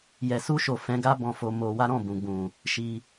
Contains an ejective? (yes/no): no